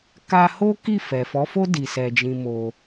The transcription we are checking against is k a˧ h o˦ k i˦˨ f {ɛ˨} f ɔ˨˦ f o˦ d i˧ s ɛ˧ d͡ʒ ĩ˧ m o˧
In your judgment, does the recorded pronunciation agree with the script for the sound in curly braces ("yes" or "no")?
yes